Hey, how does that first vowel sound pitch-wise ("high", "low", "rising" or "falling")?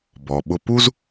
low